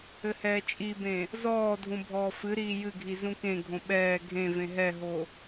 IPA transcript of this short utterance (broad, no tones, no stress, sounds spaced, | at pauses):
ɘ h ɛː t͡ʃʼ i b ẽ | z ɔː dʱ ũ bʱ ɔː f ɨ ɾ iː j ɨ ɡʱ i z ũ k ẽ ɡʱ õ ɓ ɛː ɡʱ ẽ v ẽ ɦ ɛ ɦ o